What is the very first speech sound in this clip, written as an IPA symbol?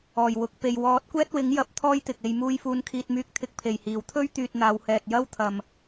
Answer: ɔː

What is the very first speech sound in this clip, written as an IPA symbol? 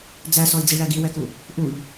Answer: d͡z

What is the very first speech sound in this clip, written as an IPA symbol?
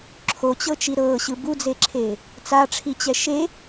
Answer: ǁʰ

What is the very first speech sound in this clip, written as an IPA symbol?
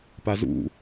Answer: p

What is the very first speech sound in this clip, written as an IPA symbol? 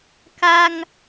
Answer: k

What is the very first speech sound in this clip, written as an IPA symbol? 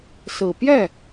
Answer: s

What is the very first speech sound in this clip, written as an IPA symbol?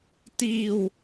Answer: t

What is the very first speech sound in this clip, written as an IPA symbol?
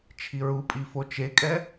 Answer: t͡ʃʰ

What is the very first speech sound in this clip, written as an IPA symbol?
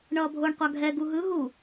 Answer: ɳ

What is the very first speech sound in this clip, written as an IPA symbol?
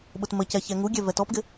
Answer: ɓ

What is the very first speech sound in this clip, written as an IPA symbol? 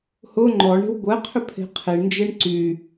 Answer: h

